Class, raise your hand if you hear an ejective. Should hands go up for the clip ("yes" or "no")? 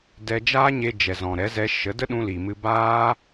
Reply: no